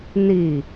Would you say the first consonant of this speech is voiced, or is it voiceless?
voiced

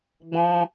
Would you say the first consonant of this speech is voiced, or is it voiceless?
voiced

